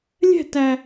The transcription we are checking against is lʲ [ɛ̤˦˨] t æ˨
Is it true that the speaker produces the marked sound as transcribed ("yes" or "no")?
yes